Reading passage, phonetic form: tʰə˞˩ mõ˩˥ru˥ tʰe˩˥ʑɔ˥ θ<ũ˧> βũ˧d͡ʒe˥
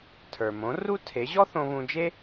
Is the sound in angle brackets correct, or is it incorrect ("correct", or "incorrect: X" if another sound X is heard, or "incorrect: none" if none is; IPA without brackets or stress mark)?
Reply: incorrect: õ˧